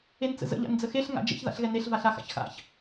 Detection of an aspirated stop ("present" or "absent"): absent